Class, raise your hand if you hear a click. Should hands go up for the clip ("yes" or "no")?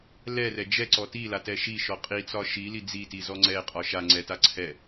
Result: yes